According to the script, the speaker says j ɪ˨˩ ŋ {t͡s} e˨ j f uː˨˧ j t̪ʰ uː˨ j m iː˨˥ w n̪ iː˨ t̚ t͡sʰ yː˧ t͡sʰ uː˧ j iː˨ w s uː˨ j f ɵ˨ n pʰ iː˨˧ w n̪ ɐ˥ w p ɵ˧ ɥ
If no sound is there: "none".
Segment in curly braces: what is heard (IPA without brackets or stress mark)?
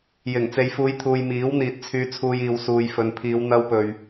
t͡s